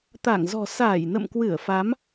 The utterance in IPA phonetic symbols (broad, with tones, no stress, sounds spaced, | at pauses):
t̪ a˧˩ ŋ z ɔ̤˨˩ s aː˧˩ j n ə̰˧˨ m k w ɨ˧˩ ə̯ f a˨˦ m